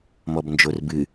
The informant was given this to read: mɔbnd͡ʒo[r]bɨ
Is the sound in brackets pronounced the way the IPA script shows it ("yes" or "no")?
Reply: yes